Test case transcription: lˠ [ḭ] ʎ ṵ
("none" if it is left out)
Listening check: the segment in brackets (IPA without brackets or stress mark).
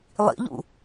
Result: ḭ